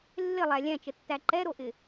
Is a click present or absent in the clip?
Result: present